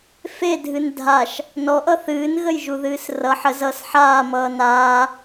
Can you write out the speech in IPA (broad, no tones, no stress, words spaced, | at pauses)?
fedʱɨn dʱaʃ | nɔʔʌ θɨːnɣəjʒuðɨːs rʌ ħə zʌs ħaːmʌː naː